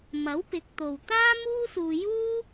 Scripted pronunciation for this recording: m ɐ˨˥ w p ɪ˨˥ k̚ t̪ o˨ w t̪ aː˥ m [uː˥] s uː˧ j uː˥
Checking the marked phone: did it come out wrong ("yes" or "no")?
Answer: no